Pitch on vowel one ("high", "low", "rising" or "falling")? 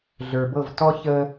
low